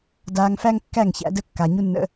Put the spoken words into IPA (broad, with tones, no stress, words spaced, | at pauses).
daː˧ŋfæ˦ŋkːæ˦˨ŋ çæ̰˦də˦ kːa˨ɲu˦nːə̰˧